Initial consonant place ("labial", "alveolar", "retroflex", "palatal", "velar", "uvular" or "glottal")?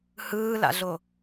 glottal